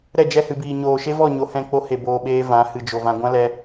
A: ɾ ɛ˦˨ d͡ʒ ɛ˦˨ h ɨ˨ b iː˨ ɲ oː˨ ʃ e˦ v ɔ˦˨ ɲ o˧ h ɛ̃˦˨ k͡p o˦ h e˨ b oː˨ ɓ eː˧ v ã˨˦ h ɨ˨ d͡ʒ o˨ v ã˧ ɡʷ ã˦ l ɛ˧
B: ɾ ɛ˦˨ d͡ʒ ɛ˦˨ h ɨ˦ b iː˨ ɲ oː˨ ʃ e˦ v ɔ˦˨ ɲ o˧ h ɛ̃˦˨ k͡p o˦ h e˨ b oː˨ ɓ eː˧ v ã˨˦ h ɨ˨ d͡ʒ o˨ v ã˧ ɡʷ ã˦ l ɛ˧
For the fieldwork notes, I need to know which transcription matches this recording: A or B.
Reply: A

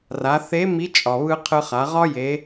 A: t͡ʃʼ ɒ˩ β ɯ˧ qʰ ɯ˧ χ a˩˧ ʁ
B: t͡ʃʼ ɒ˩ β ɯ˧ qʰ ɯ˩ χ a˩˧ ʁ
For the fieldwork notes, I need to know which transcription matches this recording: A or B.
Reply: A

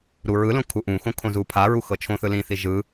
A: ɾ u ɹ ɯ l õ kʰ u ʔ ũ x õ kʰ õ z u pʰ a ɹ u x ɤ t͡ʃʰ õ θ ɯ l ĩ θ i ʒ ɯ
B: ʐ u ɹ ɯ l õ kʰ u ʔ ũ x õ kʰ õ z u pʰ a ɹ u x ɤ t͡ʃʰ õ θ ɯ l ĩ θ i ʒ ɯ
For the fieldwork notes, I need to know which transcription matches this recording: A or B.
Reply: A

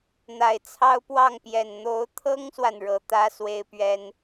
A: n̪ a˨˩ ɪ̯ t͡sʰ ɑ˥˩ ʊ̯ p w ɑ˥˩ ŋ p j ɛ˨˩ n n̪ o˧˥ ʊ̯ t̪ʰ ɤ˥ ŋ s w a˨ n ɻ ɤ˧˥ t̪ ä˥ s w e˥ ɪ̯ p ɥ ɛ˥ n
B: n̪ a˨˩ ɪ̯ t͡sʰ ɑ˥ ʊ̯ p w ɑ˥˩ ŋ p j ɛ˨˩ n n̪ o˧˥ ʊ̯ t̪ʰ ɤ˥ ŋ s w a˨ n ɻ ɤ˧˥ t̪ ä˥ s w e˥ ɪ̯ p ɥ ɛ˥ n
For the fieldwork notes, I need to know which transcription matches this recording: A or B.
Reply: B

